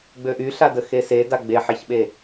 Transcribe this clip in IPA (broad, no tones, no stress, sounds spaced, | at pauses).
ɡ͡b ø ʔ y ɬ a d ə x e s e d a ɡ͡b e ħ e ç ɓ e